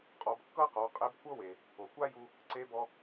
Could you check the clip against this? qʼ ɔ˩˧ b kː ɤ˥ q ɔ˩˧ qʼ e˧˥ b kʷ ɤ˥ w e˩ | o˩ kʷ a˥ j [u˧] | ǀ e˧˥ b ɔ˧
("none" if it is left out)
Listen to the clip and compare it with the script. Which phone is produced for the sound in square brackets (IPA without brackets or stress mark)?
u˧